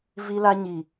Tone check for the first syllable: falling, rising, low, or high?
high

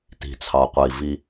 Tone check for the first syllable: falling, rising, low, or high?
low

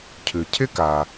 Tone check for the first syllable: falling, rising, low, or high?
low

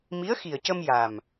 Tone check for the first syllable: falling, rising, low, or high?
rising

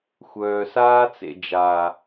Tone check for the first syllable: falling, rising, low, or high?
low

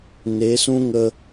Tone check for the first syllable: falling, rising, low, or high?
rising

